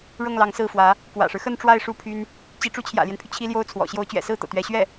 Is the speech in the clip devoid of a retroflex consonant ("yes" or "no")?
no